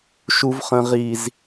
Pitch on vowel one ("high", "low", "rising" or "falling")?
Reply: low